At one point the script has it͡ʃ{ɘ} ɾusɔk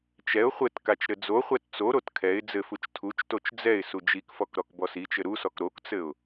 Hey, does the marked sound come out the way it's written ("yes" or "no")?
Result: yes